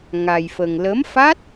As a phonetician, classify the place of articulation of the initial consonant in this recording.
velar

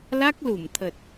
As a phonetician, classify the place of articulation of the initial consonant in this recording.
alveolar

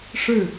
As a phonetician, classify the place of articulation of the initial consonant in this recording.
retroflex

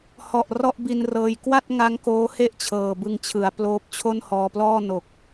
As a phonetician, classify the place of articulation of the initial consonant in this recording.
glottal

